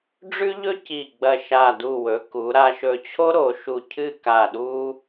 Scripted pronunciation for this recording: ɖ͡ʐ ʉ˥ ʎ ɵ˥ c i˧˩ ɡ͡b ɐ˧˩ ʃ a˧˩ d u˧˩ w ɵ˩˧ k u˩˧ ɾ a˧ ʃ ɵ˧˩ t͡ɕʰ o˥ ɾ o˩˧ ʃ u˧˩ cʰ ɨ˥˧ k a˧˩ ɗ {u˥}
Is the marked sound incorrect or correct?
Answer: correct